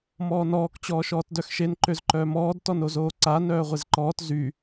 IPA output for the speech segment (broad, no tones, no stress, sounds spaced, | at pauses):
m ɔː n ɔː k t͡ɕ ɔː ʃ ɔː t d œ x ʃ e n ǃ ø z ǃ œː m ɔː d t ɔ n o z oː ǀ a n œː ʁʷ e z ǃ ɔː t z y